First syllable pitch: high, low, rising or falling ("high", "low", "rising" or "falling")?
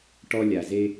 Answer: high